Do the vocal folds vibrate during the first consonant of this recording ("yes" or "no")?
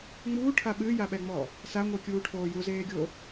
yes